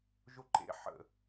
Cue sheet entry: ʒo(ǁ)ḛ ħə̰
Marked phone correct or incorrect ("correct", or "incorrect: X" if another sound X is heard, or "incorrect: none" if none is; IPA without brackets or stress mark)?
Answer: incorrect: ǃ